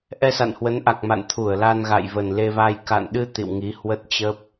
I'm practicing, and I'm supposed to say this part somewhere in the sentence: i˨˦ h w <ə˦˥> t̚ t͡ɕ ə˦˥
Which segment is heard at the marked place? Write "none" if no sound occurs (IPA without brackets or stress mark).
ə˦˥